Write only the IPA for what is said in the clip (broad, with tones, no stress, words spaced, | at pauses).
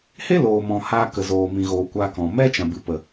he˦loː˨mɔ̃˨ haː˧kə˨ zoː˨mĩ˨ɣoː˨ kʷa˧kɔ̃˨ mɛ˦ t͡ʃã˨bɨ˨ pə˨